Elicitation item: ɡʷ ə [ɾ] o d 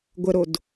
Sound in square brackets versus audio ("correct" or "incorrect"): correct